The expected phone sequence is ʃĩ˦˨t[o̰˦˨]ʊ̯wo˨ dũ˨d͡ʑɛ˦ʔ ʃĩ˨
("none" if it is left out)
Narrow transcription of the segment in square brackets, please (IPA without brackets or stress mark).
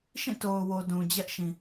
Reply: o˨